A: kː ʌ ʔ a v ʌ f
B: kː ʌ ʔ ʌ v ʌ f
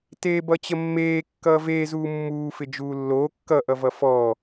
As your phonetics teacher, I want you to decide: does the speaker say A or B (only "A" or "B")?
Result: B